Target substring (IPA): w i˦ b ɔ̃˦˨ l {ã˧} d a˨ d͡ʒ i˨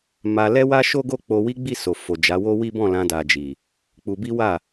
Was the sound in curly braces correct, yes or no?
yes